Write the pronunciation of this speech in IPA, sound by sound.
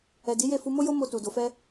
ɛ˨ d i˨˦ j e˦˨ f u˧ m o˦ j o˦ m o˧ t u˨ d o˨ f ɛ˧

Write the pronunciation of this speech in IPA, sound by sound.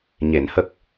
ɲ e˨˩˨ n h ə˦˥ k̚

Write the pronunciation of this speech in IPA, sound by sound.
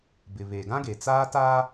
b ɪ˨ β e˨ ɡ ã˦ ɡ e˨ t͡s aː˦ t aː˦

